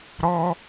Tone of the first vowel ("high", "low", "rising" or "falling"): high